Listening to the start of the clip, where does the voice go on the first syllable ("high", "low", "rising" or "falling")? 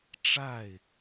falling